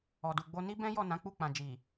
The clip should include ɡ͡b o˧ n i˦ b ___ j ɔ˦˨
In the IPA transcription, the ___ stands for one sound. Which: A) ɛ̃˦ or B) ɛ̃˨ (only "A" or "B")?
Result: A